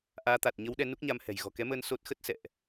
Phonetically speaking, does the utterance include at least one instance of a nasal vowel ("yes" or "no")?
no